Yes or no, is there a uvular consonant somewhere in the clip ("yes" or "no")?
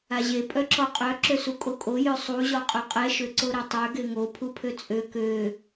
yes